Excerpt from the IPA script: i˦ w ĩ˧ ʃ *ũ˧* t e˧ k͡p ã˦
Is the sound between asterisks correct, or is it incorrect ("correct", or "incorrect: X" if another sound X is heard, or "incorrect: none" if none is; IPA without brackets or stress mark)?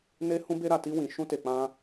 incorrect: ũ˦